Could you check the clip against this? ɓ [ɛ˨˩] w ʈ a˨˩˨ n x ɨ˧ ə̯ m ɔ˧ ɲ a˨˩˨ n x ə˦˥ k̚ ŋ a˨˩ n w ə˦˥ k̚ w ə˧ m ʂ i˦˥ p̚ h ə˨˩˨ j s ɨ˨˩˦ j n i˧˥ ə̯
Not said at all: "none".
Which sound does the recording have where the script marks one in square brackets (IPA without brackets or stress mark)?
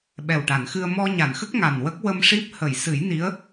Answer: ɛ˨˩